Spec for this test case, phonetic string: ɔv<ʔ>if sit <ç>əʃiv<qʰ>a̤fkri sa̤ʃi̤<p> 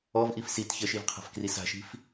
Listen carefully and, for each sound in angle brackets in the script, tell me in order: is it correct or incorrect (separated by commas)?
correct, correct, correct, incorrect